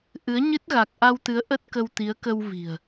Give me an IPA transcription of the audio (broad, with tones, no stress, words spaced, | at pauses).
ʔɨ˨˦ə̯ ɲɨ˦˥t̚ ɣa˨˩k̚ʔa˧wt̪ɨ˨˦ə̯ ʔə˦˥t̚kə˧wt̪i˨˦ə̯ kə˧wvi̤˨˩ə̯